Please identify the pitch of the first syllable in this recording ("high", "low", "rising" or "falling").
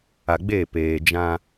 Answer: low